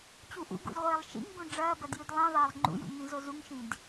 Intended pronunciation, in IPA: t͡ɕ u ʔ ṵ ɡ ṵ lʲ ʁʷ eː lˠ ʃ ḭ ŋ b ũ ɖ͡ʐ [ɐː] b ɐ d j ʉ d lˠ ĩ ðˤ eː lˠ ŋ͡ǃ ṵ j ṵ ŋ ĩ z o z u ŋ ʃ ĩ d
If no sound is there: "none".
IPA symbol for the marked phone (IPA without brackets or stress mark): ɐː